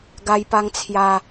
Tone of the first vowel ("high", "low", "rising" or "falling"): high